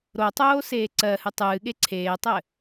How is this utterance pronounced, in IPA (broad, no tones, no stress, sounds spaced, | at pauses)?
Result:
ɾ o tˤ oː s eː ǀ ɜ h ɨ tˤ ɨː ɠ e ǀʰ eː tˤ ɘ